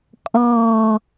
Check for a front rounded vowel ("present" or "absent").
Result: absent